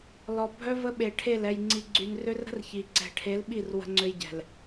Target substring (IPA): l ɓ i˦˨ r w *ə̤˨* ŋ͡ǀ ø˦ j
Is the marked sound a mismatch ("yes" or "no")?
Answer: yes